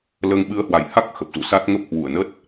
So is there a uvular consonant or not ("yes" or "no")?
no